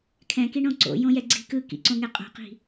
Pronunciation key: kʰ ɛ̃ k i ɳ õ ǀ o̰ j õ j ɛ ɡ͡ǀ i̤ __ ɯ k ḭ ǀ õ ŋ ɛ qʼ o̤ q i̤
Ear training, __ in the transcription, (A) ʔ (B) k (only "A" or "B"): B